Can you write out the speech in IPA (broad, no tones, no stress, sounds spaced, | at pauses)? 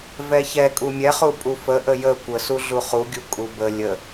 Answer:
v ɛ ç ɛ kʼ u mʲ ɛ χ u pʼ u f ə ʔ ə j ə kʷ ə s u ɮ u χ u ɡʲ u kʼ u b ə lʲ ə